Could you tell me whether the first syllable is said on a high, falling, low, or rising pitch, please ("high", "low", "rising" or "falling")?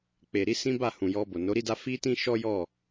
low